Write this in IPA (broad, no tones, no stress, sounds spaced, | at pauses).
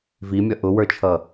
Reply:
v i mʲ ʌ ʔ ʊ w ə˞ t͡ʃʰ ʌ